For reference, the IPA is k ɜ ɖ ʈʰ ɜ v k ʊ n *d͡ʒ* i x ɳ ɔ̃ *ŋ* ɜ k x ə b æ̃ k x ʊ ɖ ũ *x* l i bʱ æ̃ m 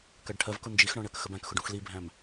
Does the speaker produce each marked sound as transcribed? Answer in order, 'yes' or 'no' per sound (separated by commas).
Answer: yes, no, yes